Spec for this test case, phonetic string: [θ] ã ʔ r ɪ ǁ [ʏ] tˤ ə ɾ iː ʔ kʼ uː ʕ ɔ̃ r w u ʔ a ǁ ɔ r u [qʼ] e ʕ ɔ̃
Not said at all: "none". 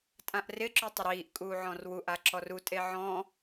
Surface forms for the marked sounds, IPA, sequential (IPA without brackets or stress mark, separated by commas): tʼ, ʏ, tʼ